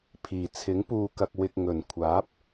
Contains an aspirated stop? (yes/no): yes